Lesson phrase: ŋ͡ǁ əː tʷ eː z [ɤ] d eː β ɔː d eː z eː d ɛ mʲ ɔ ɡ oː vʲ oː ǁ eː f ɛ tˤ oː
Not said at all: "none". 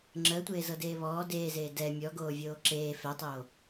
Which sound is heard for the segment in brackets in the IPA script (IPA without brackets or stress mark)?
ɤ